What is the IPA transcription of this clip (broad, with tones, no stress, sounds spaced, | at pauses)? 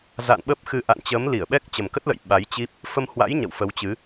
z a̰˧˨ n ɓ ə˦˥ p̚ x ɨ˧ ʔ a̰˧˨ n t͡ɕ əː˨˦ m l i˧˩ ə̯ ɓ ɛ˦˥ k̚ t͡ɕ ə˨˩ m k ə˦˥ t̚ l ə̰˧˨ j ɓ a˨˦ j t͡ɕ i˦˥ p̚ | f ə˧ m h w a̰˧˥ j ɲ ə̰˧˨ w f ə˨˦ w t͡ɕ ɨ˨˦